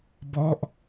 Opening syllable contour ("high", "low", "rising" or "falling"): falling